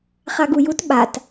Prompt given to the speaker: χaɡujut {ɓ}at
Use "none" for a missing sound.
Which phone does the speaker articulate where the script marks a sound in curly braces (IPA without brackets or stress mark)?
ɓ